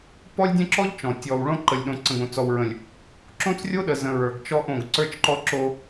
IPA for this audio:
p ɔ˦ lʲ dʲ ə̃˦ ǁ ɔ˦ ʎ t͡ʃ ɔ̃˨ tʲ ɔ˨ w ɭ õ˦ ǃ ə˨ lʲ ɗ õ˨ ǀ ə̃˨ ɡ õ˨ t͡s ɔ˨ w ɹ ə̃˨ lʲ | ǁ õ˦ t͡s rʲ o˦ ɗ ə˨ z ə̃˨ ɹ ə˞˨ ɡ t͡ʃ ɔ˦ ʔ õ˦˨ ɡ ǀ ə˞˦ t͡ʃ ǃ ɔ˦ ǁ o˦

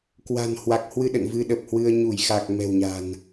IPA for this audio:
k w a̤˨˩ n h w a˨˩ k̚ h w ɨ˧ ɗ ə̰˧˨ n v ɨ˧ ɗ ə˨˩ p̚ h w ɨ˧ ə̯ ɲ u˧˩ j x a˨˩ k̚ m ɛ̤˨˩ w ɲ a̤˨˩ n

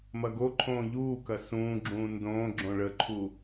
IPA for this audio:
m ɐ ɡ o ǃʰ õː ʎ uː k ɐ s ũː ɡ͡ǁ ũː n d õː ɡ͡ǁ õ ɭ ə ǃʰ u

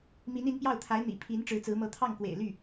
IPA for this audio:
m i˧˥ n i˧˥ n p j ɑ˥˩ ʊ̯ t̪ʰ a˧˥ ɪ̯ n̪ ḭ˨˩ pʰ i˧˥ n ʈ͡ʂ ɻ̩˧˥ t͡s ɹ̩˧˥ m ɤ˧˥ t̪ʰ ɑ˥˩ ŋ k w ḛ˨˩ ɪ̯ l y˥˩

